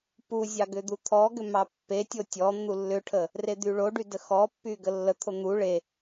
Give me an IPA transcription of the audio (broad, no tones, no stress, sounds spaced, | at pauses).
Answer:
p u zʲ ɑ ɡ ʏ d̪ u t̪ʰ ɔ ɡ ʏ m ɑ pː e tʲ o tʲ ɔ n̪ u lː ʏ ʈʰ ə | r e d̪ y ɭ o ɖ y d ə x ɔ pː y ɡ ə lː ə t̪ʰ o n̪ u ɭ e